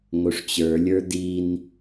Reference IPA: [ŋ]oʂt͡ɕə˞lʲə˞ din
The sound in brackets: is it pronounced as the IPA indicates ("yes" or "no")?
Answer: yes